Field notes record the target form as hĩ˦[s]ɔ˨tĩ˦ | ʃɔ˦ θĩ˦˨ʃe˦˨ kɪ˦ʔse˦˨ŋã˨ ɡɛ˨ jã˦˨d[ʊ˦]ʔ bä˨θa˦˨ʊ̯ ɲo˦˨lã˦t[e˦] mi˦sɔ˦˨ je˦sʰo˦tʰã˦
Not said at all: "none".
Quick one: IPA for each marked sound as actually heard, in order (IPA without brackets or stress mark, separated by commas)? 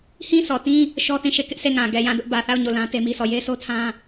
s, ʊ˦, e˦